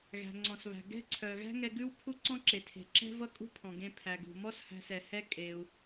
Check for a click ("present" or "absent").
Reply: present